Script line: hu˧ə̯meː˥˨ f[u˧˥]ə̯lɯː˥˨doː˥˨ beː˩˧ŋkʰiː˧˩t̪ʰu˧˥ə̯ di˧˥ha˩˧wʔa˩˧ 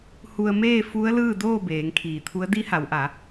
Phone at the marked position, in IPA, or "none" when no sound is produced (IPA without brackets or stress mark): u˧˥